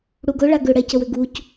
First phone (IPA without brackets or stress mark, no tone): ɽ